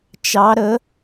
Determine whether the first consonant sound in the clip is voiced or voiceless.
voiceless